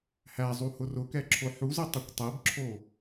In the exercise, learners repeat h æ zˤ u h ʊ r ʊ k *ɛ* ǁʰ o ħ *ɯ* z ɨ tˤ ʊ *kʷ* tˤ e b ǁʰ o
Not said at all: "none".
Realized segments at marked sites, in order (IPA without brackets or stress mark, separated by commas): ɛ, u, kʷ